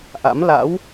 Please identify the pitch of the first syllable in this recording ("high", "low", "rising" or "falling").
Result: rising